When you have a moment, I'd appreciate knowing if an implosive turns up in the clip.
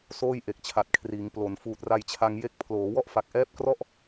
no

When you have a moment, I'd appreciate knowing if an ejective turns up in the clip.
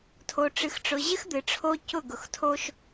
no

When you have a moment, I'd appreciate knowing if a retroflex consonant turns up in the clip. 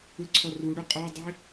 yes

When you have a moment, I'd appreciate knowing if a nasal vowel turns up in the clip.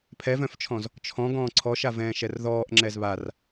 yes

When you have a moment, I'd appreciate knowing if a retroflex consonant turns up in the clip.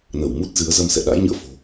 no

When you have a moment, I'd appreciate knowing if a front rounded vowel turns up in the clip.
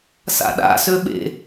yes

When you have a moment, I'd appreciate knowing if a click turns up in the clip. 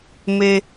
no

